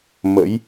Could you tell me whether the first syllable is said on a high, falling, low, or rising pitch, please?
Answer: rising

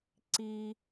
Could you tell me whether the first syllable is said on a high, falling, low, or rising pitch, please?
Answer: high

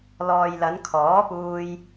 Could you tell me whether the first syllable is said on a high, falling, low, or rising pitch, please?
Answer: low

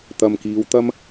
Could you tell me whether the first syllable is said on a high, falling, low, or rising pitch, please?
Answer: low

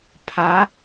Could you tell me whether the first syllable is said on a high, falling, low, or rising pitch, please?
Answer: rising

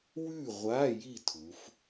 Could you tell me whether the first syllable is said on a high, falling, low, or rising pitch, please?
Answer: falling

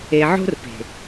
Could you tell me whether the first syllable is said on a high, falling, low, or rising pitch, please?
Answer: low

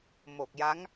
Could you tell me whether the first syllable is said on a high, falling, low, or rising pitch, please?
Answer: low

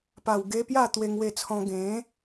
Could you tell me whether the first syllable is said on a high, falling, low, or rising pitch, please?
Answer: low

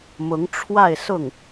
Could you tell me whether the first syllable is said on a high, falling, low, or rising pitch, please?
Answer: rising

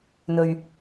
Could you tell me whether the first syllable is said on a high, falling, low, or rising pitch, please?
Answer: low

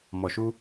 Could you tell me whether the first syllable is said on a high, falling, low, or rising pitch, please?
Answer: low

